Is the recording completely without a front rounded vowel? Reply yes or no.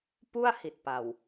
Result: yes